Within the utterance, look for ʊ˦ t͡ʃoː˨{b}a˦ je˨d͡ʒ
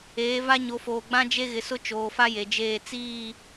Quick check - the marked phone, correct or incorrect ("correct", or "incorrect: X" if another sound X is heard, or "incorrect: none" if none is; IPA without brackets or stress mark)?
incorrect: f